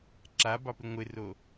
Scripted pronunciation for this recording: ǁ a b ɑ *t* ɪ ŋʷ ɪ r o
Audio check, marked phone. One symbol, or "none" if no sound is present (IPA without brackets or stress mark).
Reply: p